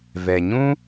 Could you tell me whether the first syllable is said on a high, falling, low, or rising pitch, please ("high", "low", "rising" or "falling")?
low